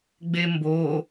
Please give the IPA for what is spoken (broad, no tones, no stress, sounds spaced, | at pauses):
ɡ͡b e m b o